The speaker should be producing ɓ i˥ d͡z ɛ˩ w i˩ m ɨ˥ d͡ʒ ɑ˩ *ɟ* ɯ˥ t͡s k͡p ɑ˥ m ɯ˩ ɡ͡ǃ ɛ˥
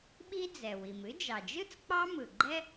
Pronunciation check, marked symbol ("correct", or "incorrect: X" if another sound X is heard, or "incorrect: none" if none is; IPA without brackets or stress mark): incorrect: d͡ʒ